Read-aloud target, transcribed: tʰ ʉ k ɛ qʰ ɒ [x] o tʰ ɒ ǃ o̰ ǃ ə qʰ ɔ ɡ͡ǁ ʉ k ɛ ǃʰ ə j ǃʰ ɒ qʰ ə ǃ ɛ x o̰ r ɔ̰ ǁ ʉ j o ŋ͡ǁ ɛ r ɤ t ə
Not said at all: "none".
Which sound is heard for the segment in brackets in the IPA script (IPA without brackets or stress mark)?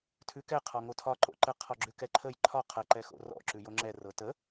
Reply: ŋ